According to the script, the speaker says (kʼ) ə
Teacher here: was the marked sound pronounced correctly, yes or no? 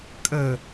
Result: yes